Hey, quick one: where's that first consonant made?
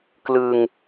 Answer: velum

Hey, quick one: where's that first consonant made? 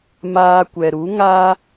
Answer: lips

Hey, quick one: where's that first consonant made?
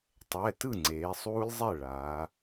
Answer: tongue tip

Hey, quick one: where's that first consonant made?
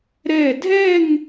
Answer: tongue tip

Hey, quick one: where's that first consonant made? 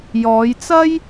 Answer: palate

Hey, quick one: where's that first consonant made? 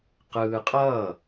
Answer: uvula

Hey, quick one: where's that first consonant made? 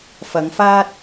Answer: lips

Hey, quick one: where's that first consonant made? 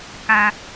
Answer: velum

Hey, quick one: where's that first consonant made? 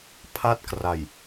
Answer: lips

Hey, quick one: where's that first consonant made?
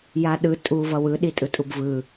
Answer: palate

